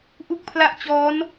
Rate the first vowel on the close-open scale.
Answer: close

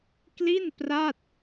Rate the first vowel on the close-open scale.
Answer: close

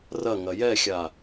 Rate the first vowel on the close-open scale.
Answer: open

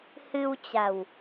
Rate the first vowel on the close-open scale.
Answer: close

